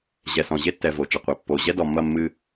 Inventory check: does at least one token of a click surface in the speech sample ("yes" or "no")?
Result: no